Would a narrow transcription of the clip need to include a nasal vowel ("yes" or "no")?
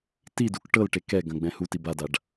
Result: yes